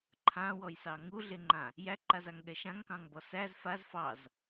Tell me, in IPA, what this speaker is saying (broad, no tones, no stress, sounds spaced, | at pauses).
ǃʰ ã w ɔ j s ɑ ŋ u ɮ e ŋ͡ǃ ã | j æ ǃ a z a ŋ ɠ ɛ ʃ ã ŋ k ɑ̃ ŋ b ɔ s æ z f a z f ɑ z